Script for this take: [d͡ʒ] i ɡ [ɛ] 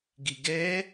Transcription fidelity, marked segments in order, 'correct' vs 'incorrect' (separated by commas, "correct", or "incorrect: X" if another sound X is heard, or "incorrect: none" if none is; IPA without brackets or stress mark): incorrect: ɡ, correct